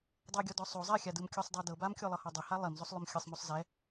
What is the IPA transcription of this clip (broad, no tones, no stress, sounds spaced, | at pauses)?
dˤ ɤ ɡʲ ɔ d ɔ sˤ o zˤ ɛ xʲ a d ɯ m kʲ u sˤ dˤ i d ɤ b a m kʲ o lˠ ɤ h ɔ dˤ e h a lˠ i m z o sˤ lˠ o m xʲ ɯ sˤ m o sˤ z ɛ